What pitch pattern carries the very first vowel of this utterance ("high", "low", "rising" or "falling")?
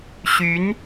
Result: rising